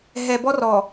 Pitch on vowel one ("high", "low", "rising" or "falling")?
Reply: low